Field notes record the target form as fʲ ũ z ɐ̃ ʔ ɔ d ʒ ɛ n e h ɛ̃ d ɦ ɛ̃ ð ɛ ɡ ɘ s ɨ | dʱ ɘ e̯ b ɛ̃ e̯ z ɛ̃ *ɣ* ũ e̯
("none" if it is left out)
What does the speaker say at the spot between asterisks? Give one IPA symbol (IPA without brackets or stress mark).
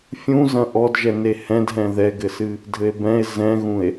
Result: ɣ